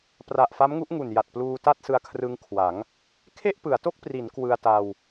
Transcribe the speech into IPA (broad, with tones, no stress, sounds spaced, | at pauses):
p r a˨˩ ʔ f a˦˥ m ŋ u˦˥ ʔ ŋ u˨˩ n j a˨˩ t̚ p l uː˧ t a˥˩ t̚ s ɯ˧ a̯ kʰ r ɯ˧ ŋ kʰ w a˩˦ ŋ | kʰ e˥˩ ʔ p ɯ˩˦ a̯ t o˥˩ k̚ p r i˩˦ n k w ɯ˧ a̯ t a˧ w